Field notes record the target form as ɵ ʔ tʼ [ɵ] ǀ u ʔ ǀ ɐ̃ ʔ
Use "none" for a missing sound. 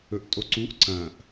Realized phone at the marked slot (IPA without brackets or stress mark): o